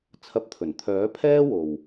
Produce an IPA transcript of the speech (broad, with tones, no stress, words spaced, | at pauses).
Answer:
t͡sʰɐ˧p̚t̪ʰɵ˨˩n t̪ʰœː˨˥pʰɛː˥wo˨w